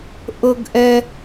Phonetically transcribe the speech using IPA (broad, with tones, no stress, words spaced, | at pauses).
ʔɤ˧ɡʔɛ˧